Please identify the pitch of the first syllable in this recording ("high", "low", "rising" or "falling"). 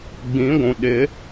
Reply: rising